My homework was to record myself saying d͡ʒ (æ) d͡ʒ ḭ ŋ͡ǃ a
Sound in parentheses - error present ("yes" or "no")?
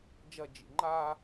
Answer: yes